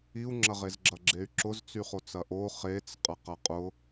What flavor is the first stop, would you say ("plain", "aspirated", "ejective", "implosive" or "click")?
click